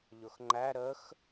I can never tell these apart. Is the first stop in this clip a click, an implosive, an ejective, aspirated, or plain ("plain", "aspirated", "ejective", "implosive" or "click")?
click